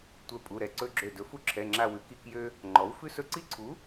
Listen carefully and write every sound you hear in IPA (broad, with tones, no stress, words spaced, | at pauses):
tʷɛ˧˩pʼu˩˧˩ɾɛ˧˩ ǀɵ˦ɡ͡ǁø˧˩ dɵ˩˥fu˦ǁʰɛ˩˧˩ŋ͡ǁa˧˩ wʉ˩˥ki˧˩˧kjø˦ | ŋ͡ǃɔ˩˥w fʉ˦sɵ˦ ǀi˦ ǀʰu˩˥